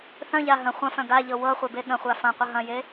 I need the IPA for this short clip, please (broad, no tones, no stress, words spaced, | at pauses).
θœ̃ʎa ɦə̃ χʷɐ̃fœ̃ ɡaʎɤ wɤ χʷebeɠə̃χʷa fɐ̃qʷə ɦɐ̃je